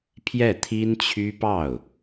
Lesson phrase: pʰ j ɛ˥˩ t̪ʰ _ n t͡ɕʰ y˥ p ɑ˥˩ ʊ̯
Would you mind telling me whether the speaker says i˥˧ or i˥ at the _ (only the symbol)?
i˥